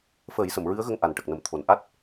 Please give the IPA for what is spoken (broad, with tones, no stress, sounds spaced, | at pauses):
f əː˨˩˦ j s ə˨˩˨ m ɹ ɨ˧˥ ə̯ ɣ ə˧ ŋ ʔ a˨˩ n ʈ ə˨˩ k̚ n ə˨˩ m t̪ʰ o˨˩˨ n ʔ a˦˥ t̚